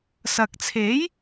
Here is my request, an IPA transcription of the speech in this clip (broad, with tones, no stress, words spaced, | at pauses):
sɐ˨k̚t͡sʰe˨˥j